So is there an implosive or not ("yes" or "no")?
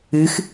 no